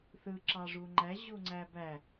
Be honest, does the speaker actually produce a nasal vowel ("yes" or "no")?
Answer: no